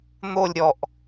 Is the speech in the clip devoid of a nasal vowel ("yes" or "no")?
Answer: yes